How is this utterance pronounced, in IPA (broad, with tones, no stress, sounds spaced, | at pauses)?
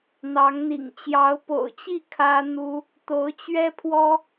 n̪ ɑ˧˥ ŋ n̪ ḭ˨˩ ŋ t͡ɕ j ɑ˧˥ ʊ̯ p o̰˨˩ ʊ̯ t͡ɕ i˥˩ kʰ ä˥ n̪ u˥ | t̪ o˧˥ ʊ̯ t͡ɕ ɥ ɛ˥ pʰ w ɔ˥